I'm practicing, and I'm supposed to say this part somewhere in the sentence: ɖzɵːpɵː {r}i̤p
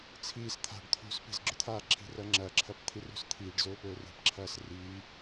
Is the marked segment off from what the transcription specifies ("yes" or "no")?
no